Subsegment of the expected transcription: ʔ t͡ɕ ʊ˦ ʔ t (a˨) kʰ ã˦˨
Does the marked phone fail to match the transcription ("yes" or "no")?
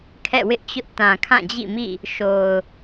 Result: yes